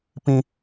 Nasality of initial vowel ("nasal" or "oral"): nasal